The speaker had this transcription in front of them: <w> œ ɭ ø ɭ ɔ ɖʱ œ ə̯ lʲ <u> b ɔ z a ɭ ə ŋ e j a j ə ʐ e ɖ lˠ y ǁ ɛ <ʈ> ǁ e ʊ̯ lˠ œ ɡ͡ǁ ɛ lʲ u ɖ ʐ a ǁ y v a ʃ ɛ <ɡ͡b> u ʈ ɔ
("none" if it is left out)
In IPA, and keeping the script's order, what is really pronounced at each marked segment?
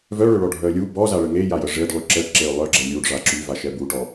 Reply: v, u, ʈ, b

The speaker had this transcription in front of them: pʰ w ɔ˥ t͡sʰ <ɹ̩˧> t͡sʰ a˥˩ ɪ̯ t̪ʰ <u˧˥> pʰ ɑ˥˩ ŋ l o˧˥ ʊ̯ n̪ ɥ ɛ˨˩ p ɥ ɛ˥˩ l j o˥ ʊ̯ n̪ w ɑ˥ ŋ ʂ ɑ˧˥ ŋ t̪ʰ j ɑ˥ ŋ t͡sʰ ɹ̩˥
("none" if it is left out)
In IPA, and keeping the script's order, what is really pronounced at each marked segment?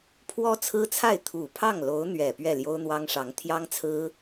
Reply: ɹ̩˥, u˨˩

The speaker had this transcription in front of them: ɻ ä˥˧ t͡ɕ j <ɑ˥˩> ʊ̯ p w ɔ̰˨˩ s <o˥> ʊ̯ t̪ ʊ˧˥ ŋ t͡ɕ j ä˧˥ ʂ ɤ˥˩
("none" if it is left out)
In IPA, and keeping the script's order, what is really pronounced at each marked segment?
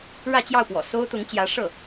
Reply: ɑ˥˩, o˥

